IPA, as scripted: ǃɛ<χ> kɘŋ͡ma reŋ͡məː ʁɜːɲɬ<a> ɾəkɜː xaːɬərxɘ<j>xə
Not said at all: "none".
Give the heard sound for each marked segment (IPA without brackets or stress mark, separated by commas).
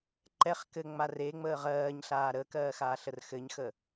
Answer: χ, aː, ɲ